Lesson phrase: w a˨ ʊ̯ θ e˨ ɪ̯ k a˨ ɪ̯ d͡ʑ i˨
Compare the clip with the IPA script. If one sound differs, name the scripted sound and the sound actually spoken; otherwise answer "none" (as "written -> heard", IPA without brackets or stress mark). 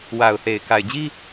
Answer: i˨ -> i˦